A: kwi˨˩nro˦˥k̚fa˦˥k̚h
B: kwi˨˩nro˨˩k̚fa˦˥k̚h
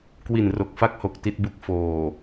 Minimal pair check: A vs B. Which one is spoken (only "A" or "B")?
B